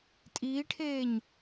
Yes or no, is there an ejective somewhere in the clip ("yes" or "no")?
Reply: yes